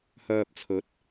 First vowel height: mid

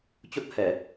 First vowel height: mid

